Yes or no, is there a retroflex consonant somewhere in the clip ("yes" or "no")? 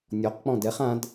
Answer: no